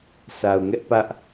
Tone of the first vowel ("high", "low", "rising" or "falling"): low